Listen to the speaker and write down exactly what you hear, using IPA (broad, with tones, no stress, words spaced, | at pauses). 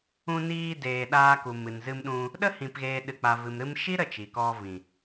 ũ˧niː˧deː˨ ɗaː˧ku˨mɨ˨n zɨ˧mɗũ˧ | ɗə˦hĩ˨pɣeː˨ ɗɨ˨k͡pa˨vɨ˨m ɾɨ˧mʃi˦ ɾə˦˨t͡ʃi˨kɔ˧ vĩ˨